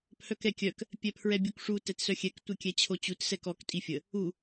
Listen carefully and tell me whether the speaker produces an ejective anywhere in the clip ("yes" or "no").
yes